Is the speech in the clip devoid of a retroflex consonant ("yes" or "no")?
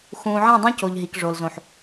no